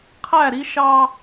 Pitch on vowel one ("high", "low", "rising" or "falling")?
falling